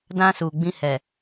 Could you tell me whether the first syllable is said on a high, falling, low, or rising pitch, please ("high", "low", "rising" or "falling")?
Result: high